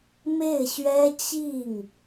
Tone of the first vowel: falling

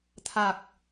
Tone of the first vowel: low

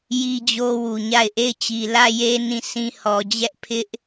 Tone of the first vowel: high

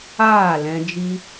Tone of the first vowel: falling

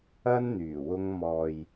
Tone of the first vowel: high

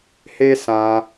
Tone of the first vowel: high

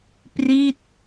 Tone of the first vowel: falling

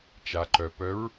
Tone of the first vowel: low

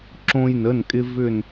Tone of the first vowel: high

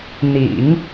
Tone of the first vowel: low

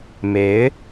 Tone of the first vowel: rising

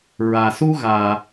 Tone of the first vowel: low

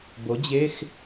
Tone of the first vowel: rising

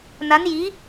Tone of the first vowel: rising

